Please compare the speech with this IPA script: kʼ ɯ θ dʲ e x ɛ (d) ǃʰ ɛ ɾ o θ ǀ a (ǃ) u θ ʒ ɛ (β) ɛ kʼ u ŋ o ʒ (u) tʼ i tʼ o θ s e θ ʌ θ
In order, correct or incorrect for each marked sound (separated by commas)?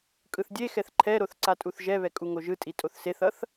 incorrect, incorrect, correct, incorrect